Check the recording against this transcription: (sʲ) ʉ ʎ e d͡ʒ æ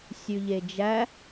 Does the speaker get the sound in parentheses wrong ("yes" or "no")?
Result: no